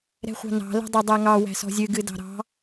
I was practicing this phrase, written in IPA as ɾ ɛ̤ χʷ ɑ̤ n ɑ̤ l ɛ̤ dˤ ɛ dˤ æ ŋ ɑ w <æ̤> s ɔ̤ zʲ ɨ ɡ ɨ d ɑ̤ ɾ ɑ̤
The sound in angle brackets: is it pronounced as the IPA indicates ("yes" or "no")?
yes